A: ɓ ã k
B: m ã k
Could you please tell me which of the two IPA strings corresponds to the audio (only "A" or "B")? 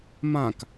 B